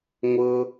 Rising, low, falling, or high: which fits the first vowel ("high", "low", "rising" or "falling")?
high